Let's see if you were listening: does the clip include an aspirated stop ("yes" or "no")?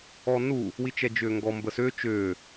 no